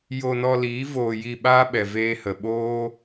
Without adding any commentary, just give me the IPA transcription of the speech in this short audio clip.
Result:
j o˧ n ɔ˧ l iː˨˦ v oː˧ j i˧ ɓ aː˦ ɓ ɛ˨ v eː˧ h ə˨ ɓ oː˦

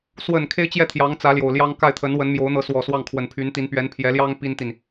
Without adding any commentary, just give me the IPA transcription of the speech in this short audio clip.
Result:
s w ə˨˩ n kʰ e˥ ɪ̯ t͡ɕ j ɛ˥˩ t̪ʰ j ɑ˧˥ ŋ t͡s ä˧˥ l j o˨˩ ʊ̯ l j ɑ˥ ŋ k a˥˩ ɪ̯ t̪ʰ ə˧˥ n w ə˧˥ n m j o˧˥ ʊ̯ n̪ ɤ˧˥ s w ɔ˨˩ s w ɑ˥˩ ŋ kʰ w ə˨˩ n pʰ y˧˥ n t̪ i˧˥ n p ɥ ɛ˧˥ n pʰ j ɛ˧˥ l j ɑ˥ ŋ p i˥ n t̪ i˨ n

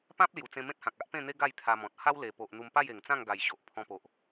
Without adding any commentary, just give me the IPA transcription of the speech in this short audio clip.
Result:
p ã˦ p̚ l j u˨˩ t͡s ẽ˧ m ẽ˦ t̚ h ã˨ k̚ a˦ ʔ p ẽ˥˧ n̪ e˦ ɡ a˥˧ j t̪ʰ a˧ m ɔ̃˨ t̚ h a˦ w l e˨˩ p o˨ ʔ n̪ u˧ m p a˥˧ j e˨˩ ŋ t͡s ã˥˧ ŋ ɡ a˨˩ j ɕ o˨ ʔ pʰ ɔ̃˧ p o˨ ʔ

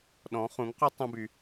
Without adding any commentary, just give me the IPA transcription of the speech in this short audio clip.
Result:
ɗ ɔ̃˨˦ χ ũ˨˦ ŋ q u˦ tˤ õ˦ b y˧

